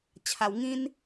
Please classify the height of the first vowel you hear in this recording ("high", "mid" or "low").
low